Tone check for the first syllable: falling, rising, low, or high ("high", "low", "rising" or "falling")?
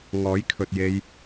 rising